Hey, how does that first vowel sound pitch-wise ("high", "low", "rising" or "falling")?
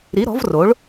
rising